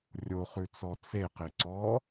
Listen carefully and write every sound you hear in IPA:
rʲ o χ ʉ t͡s ɔ t͡s e q ɪ ǀ ɔ

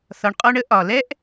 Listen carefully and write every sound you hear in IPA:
θ ɒ˧ ɳ qʼ ɔ˦ ɳ ə˦ ʔ ɒ˨ l ɛ˦ ʔ

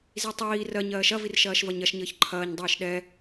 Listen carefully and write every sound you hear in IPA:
z i tˤ iː r ɜ ɲ ɜː ʃ ɐ v i r ʃ ɐː ʃ v ɐ ɲ ɐ ʃ ɲ əː ç ǃʰ ɐː ɲ dˤ iː ʃ ɗ ɛ

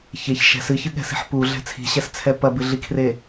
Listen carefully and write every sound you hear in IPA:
ç e ç ʃ ɛ̤ s ɨ ç ɨ ɠ ɛ̤ s i̤ ħ p u ɮ ɛ̤ t͡sʰ i̤ ɕ ɛ s t͡sʰ ɛ p ɐ b ɨ ɮ i kʰ r e

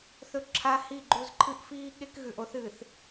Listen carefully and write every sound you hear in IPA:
θ ɵ˦ ǁʰ a˦ h i˦˨ ɡ͡ǃ u˦˨ z ǃʰ ɨ˦ ʔ f iː˦ ɠ e˦ k ɣ ʉ˨ ʔ o˦ θ ɨ˨ θ

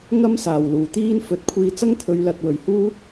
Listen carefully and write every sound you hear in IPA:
ŋ ɐ˥ m s aː˨˩ w l uː˨˩ t̪ iː˥ n f ɵ˨˥ t̚ kʷʰ iː˧ t͡s ɐ˥ ŋ t̪ʰ ɵ˨˧ ɥ l ɐ˨ t̚ w ɵ˨˩ ɥ h uː˥

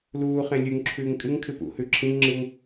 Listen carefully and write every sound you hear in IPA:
l uː χ ẽ lʲ ʉ ŋ ǁʰ ʉː ŋ kʼ ɨ ŋ kʰ ɨ p ṵ h ʉ ǁʰ ĩ ŋ ŋ͡ǁ ɨ ŋ

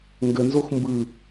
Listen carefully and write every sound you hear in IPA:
ŋ ɡ ə n z o x m b ɯ

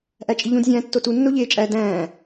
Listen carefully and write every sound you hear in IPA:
ʔ æ t͡ʃʼ i ʎ ũ d zʲ æ̃ː tː o t u nː o ʎ eː t͡ʃʼ æ d æ̃ː

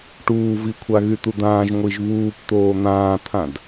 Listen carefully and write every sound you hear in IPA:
ʈ uː v i kʷʰ a ɣ y t̪ u d̪ ãː ʒ ŋʷ i ʒ β uː p t̪ oː n̪ ãː t̪ʰ ã d

